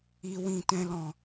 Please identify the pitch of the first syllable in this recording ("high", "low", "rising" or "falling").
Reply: low